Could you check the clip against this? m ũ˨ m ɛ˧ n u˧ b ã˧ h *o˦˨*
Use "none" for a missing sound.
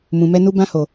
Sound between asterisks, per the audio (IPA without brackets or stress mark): o˨